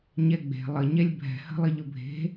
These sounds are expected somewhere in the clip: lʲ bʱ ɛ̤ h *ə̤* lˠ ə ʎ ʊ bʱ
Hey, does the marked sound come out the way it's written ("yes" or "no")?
yes